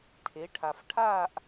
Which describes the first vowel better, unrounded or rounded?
unrounded